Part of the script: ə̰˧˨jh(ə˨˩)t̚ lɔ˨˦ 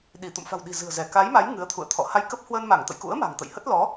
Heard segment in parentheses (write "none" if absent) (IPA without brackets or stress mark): ə˦˥